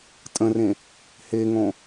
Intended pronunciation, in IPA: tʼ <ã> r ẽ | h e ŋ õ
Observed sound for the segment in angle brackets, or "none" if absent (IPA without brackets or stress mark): ə̃